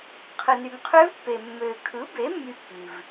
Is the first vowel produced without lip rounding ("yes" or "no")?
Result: yes